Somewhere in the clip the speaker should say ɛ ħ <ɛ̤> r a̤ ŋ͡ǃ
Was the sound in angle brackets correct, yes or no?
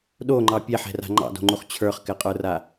yes